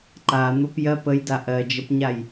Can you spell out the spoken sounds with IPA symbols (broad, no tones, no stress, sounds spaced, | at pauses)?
ǃ a n̪ o p j ɜ p ə j d a ʔ ɜ d͡ʒ ə p ɲ a j